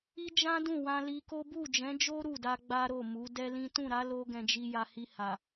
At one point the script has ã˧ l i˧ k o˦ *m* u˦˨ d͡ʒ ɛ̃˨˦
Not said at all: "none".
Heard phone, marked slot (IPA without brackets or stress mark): b